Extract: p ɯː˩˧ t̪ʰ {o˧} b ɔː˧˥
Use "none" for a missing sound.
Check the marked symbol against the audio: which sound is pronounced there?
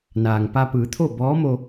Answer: o˥˨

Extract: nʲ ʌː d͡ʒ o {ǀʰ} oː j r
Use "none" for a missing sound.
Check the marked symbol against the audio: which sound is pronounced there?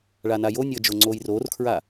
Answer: ŋ͡ǀ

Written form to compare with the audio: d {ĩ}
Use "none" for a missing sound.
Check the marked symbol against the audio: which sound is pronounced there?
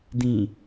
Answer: ĩ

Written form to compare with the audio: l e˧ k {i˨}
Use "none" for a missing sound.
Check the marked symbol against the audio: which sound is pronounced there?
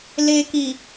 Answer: i˨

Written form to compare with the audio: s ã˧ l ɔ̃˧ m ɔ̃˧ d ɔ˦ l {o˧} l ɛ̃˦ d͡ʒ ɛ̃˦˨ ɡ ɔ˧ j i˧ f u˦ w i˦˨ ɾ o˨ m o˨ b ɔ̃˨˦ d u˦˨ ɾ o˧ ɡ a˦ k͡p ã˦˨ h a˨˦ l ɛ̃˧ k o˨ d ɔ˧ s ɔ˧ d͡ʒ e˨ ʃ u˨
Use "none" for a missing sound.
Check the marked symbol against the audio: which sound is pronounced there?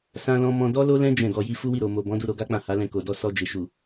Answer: o˦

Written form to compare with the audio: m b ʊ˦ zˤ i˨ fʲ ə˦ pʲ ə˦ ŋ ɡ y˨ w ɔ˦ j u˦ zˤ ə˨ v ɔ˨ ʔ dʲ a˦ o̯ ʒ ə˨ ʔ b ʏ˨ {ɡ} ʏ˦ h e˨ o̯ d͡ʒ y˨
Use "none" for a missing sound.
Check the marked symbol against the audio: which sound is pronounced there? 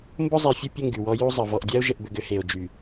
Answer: ɡ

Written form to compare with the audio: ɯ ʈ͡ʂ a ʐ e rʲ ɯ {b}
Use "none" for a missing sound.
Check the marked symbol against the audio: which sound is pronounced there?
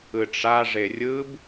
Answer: b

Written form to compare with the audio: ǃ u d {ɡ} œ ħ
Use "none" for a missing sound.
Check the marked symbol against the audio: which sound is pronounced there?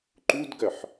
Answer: ɡ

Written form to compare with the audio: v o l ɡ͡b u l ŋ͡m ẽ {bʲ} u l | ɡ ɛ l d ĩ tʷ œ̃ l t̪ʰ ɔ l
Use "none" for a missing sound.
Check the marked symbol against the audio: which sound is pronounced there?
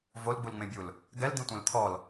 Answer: bʲ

